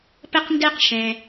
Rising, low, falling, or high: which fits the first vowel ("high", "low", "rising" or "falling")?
high